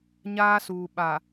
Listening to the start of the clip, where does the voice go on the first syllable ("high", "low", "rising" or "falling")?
high